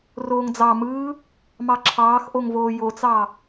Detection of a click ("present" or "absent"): present